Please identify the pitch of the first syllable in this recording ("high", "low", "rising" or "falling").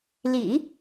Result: low